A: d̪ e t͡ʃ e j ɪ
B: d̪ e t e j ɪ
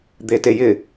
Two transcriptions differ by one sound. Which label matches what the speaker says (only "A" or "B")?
B